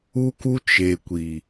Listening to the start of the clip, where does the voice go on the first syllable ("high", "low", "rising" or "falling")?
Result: high